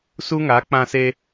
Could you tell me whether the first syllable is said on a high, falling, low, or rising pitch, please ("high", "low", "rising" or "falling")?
high